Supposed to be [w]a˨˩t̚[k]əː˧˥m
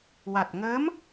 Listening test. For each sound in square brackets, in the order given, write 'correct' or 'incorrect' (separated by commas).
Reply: correct, incorrect